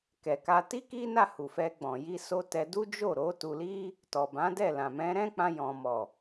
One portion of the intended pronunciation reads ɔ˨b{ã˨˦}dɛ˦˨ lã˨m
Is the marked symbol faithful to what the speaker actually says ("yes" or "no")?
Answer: yes